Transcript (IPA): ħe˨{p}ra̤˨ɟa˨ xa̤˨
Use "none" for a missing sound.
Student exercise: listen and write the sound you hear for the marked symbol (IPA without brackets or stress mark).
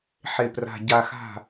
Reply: p